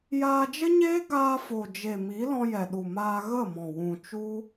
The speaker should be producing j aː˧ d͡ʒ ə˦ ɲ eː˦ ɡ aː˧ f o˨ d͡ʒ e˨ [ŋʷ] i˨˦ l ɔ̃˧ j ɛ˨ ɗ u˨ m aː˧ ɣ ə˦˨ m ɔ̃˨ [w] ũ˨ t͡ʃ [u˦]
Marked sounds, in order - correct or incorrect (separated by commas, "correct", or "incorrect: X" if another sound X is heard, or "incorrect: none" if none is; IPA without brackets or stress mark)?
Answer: incorrect: m, correct, correct